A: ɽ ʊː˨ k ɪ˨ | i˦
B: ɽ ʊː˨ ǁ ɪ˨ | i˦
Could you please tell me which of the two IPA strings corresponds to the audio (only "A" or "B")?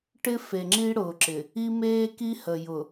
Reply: B